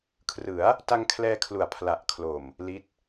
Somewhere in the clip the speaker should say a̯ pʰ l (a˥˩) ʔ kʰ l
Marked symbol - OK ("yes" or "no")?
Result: no